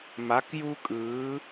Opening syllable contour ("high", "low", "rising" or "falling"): rising